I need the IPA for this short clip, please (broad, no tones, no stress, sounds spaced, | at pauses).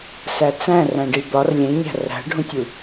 s æ t͡s æ̃ r æ̃ ɖ i d̪ ɒ r lʲ ẽ ɲ æ̤ r æ̤ ɖʱ ũ tʲ u